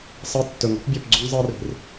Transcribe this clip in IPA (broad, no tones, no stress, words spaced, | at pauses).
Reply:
sˤɤ tːɵŋ ɔ̤pbʲɔpɡ͡ǀɵŋ zˤɤri̤r